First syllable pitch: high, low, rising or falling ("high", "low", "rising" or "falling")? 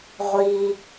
low